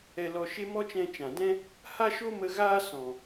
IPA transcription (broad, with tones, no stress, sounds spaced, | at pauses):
ɛ˧ l ɔ˧ ʃ e˦ m ɔ˦ t͡ʃ ɛ̃˧ t͡ʃ ã˨ d ɛ̃˦ | h a˦ ʃ o˦ m ə˧ ɣ aː˦ s ɔ̃˨